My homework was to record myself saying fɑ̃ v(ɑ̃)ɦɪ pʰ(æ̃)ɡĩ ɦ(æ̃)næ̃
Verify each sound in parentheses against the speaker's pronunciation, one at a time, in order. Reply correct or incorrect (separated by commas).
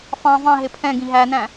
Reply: correct, incorrect, incorrect